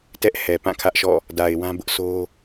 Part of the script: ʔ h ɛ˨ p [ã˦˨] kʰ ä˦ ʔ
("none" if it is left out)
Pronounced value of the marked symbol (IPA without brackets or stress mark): ã˦˨